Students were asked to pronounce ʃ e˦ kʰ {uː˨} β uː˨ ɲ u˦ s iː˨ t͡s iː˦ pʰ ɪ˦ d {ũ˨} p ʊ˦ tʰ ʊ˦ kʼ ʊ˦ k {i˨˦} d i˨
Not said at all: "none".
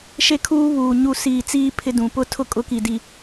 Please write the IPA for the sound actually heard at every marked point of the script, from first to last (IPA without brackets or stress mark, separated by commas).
uː˦, ũ˨, i˨